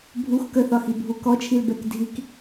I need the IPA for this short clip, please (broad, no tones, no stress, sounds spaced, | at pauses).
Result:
bʱ u x k ə θ ɒ x i bʱ u k ɔ t͡ʃʰ i l b ɛ k dʱ i k